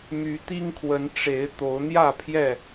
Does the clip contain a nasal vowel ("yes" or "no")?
no